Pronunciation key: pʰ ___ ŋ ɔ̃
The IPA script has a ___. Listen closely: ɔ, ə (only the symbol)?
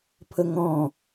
ə